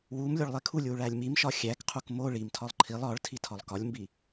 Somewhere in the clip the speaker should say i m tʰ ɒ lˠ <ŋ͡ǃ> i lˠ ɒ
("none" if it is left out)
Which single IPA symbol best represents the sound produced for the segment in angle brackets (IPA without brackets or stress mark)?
ǃʰ